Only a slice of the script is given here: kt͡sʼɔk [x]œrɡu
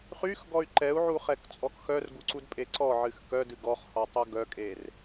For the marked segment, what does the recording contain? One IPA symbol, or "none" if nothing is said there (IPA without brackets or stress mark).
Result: x